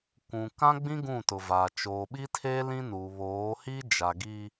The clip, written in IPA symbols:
kʷũ˨kã˦ɡ͡bĩ˦ ɡũ˦˨tʊ˨vaː˨ t͡ʃoː˨ɓi˦tʰeː˦ lĩ˦nu˨ βoː˨˦hi˦d͡ʒa˨ ɡi˦

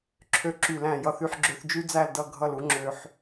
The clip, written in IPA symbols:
ǁʰø˦ǁy˦˨læ̃˦˨ jʌ˦θy˦ħɡ͡ǁø˦θ d͡ʒy˦d͡zæ˦˨l dʌ˦˨ ɡʱʌ˦˨lu˦ ŋ͡ǁø˦ħ

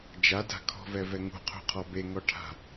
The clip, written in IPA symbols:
d͡ʒada̤ kʰɔ̤vɛvɛ ŋṳqʰṳqʰɔ beŋɔʈʰa̤

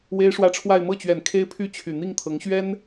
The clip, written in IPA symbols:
we˥ɪ̯ʂwä˥ʈ͡ʂʰwa˥˧ɪ̯ mɤ˥˩t͡ɕɥɛ˨˩n kʰe˥ɪ̯ pʰy˥˩t͡ɕʰy˨˩n̪i˥˩ŋt̪ʰɤ˧˥ŋ ɕɥɛ˥n

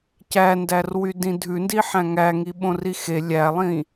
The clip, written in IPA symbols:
cændærwy dĩdʱʉndi ħæ̃ŋæŋi ɓõrixe lʲælˠĩ

